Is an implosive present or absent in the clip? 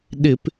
present